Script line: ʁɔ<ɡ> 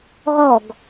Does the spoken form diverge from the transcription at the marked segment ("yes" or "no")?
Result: no